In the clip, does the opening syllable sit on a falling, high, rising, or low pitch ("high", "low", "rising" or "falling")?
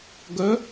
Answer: rising